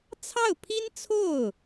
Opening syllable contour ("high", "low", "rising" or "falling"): falling